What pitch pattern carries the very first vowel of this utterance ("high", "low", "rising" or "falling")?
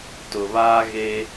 low